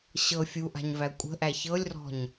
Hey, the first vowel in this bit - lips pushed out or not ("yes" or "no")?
no